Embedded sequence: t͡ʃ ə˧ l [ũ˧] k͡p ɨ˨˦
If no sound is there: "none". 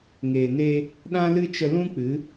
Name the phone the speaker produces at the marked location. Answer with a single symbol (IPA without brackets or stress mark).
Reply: ũ˦